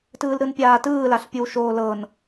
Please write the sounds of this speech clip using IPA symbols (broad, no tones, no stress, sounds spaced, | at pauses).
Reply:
t ɯː l ɾ ɯ n pʲ aː t ɯː l a ɬ pʲ ɯ w ʃ oː l ɤ n